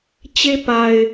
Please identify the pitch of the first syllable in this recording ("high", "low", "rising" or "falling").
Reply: high